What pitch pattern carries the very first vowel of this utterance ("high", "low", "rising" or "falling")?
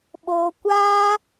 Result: high